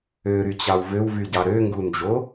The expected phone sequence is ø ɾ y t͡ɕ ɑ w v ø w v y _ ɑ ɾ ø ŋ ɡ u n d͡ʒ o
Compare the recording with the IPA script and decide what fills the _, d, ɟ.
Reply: ɟ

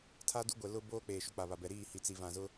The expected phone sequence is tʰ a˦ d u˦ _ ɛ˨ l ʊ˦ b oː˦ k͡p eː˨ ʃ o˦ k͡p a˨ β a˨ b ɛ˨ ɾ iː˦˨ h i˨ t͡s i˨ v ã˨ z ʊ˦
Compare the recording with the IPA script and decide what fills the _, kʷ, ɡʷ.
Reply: ɡʷ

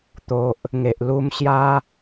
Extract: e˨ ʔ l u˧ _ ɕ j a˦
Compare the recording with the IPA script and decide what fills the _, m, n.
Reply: m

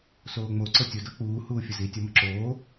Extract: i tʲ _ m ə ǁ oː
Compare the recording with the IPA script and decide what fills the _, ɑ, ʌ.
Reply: ʌ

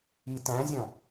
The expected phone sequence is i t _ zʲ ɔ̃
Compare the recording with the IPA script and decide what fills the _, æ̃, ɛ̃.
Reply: æ̃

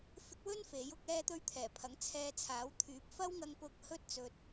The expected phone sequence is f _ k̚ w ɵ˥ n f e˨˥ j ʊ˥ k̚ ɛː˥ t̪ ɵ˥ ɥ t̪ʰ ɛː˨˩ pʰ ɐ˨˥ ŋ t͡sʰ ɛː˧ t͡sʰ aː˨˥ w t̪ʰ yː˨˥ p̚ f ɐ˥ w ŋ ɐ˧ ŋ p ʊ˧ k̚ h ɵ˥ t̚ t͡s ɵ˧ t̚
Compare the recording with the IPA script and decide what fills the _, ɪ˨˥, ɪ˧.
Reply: ɪ˧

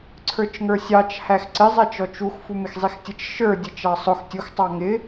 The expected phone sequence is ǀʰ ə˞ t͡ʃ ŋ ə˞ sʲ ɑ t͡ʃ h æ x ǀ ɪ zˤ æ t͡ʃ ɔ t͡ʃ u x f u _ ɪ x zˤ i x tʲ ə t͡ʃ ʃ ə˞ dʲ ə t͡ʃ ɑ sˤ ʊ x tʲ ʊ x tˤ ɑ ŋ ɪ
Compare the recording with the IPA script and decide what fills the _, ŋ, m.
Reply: m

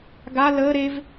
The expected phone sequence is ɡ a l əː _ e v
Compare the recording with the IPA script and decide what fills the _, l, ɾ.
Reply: ɾ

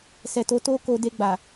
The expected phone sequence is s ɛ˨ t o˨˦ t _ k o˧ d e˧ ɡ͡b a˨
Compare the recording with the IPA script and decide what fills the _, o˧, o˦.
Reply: o˦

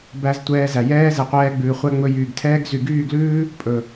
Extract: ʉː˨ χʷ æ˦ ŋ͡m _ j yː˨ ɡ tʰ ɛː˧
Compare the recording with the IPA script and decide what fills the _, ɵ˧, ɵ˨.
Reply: ɵ˧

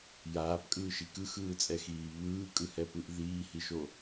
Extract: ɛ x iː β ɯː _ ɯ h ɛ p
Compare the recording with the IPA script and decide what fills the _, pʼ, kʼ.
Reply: kʼ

